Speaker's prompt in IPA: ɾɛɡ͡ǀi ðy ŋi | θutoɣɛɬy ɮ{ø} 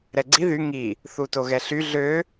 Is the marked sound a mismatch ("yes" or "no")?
no